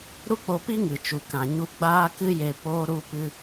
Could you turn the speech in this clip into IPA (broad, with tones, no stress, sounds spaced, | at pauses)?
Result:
ɾ u˦ k͡p o˧ p i˦ ŋ ɨ˨ t͡ʃ u˨ k ã˨ ɲ u˧ ɡ͡b aː˦ k ɨ˦ j e˧ p oː˧ ɾ u˧ p ɨ˧